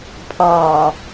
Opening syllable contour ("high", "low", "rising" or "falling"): low